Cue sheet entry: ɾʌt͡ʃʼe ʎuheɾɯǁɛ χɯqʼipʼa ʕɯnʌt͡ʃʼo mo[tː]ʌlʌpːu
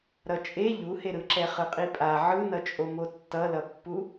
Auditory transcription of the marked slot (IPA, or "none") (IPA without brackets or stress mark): tː